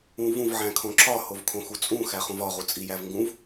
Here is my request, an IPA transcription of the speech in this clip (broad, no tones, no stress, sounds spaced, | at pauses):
ũ v ũ v ʕ æ̃ kʰ õ ǁ ɒ h o v kʰ õ x u t͡sʼ ũ x æ χ ũ v ɒ ʁ u t͡sʼ i j æ v ŋ ɡ ũ v